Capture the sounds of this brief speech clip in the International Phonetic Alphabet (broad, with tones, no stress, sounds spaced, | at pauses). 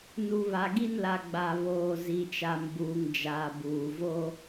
n u˨ β a˨ ɡ i˦ n l a˨ ɡ͡b a˨ β oː˨ z i˨ t͡ʃ a˨ m b uː˨ ŋ d͡ʒ aː˨ b uː˨ v o˦